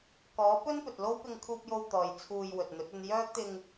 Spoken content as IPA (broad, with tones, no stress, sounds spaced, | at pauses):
k ɔː˨˥ p ɵ˥ n p ɵ˨ t̚ l o˥ w p ɪ˧ ŋ kʰ uː˧ p̚ j o˧ w t̪ ɔː˨ j t͡sʰ uː˧ j w ɵ˨ t̚ n̪ ɵ˨˥ t̚ ɵ˧ n j œː˥ k̚ t̪ ɪ˧ ŋ